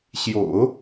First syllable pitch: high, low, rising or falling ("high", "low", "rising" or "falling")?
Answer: low